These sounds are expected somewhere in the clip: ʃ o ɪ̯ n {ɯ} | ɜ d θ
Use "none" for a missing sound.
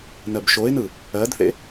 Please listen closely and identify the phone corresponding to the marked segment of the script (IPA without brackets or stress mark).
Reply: ɯ